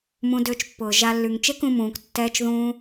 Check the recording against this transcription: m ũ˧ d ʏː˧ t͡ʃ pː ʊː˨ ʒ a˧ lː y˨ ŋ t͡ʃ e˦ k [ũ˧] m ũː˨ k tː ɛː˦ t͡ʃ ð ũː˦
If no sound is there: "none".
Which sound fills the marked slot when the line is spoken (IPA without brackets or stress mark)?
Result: ũ˧